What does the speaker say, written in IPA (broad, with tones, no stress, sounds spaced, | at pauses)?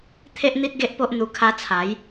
t̪ʰ e˦ ʔ n̪ i˦ t̚ ɡ e˦ ʔ p o˦ ʔ n̪ u˧ kʰ a˧ t͡sʰ a˨˦ j